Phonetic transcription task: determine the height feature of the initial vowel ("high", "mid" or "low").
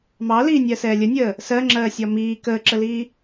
low